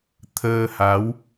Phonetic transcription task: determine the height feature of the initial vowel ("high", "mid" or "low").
mid